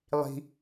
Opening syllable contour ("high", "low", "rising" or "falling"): high